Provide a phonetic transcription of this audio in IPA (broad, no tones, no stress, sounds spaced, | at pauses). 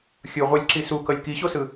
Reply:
xʲ ɯ ʁʷ ɛ lʲ ǁ i s u k ʌ lʲ k i ɕ o s ɯ